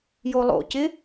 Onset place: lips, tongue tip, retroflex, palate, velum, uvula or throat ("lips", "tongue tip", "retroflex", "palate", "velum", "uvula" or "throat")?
palate